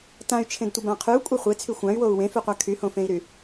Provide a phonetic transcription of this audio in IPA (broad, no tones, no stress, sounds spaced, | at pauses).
t ã y̯ t͡ʃʰ ẽ d tʷ ɪ b ã qʰ y u̯ kʷʼ e χʷ e t͡sʰ y xʷ ã y̯ w o u̯ w ẽ f y qʷ a kʰ y h õ f ẽ i̯ ɾ y